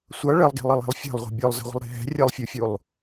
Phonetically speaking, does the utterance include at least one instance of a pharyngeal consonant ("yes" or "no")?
no